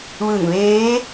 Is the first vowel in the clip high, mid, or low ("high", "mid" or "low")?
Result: high